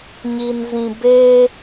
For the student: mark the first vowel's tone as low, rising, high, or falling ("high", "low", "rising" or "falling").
low